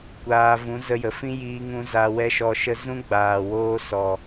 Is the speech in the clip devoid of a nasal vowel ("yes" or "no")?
no